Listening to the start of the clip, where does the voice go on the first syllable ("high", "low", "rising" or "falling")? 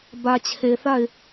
low